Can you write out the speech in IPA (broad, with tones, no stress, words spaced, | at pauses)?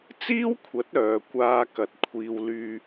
t͡siː˥wkʷʰɐ˨˥t̚ œː˨˧kʷaː˧kɐ˨˥t̚ kʷʰiː˧w lyː˧